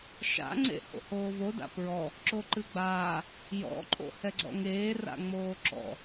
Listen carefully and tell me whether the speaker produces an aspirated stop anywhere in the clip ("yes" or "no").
no